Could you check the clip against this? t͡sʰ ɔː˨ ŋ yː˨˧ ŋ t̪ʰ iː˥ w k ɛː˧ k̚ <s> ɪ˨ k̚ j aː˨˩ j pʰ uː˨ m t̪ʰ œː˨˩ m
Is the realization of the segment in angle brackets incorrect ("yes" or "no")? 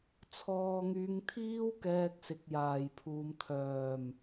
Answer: no